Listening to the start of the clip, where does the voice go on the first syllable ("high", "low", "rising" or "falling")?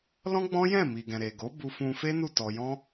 high